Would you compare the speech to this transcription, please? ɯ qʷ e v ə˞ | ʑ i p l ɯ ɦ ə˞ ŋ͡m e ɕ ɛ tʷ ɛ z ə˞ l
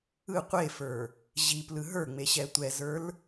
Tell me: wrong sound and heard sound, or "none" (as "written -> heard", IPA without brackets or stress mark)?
v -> f